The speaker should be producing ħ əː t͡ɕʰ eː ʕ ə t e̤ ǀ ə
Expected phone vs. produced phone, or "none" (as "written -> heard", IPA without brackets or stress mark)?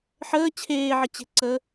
t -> t͡ɕ